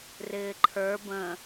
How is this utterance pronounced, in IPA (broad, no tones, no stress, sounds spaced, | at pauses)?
r ɪː ǃʰ ə˞ b ə̃